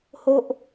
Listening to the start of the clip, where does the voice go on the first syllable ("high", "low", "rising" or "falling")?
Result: low